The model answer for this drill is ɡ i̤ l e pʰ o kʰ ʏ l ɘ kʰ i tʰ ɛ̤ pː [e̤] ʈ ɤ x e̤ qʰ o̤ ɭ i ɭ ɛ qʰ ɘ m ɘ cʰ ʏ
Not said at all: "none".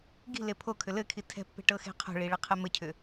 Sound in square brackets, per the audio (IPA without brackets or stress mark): e̤